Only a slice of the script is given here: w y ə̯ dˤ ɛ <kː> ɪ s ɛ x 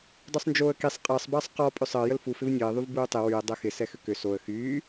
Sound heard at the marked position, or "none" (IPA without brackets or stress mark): x